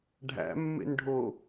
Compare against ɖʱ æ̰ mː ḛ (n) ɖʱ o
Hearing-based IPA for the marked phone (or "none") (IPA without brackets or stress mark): n